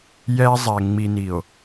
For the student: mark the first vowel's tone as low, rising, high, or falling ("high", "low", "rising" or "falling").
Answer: high